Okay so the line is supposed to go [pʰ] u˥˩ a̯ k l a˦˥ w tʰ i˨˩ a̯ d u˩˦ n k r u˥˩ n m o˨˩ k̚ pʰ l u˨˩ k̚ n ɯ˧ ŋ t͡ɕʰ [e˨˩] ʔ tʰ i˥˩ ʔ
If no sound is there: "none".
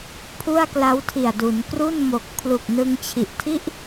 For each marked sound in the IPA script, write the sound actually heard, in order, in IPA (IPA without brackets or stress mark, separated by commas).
pʰ, i˨˩